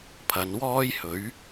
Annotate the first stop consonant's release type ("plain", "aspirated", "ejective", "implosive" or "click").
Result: aspirated